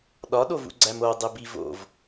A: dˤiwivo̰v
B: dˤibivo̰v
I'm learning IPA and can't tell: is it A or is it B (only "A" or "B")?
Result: B